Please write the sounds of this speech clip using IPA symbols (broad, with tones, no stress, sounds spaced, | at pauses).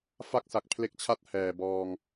f a˥˩ k̚ s a˨˩ k̚ pʰ l e˦˥ k̚ t͡ɕʰ a˥˩ t̚ h ɛː˨˩ b ɔː˧ ŋ